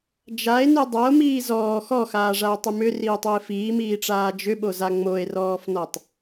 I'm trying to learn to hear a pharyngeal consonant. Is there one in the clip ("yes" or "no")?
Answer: no